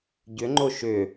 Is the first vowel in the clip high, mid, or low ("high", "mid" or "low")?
high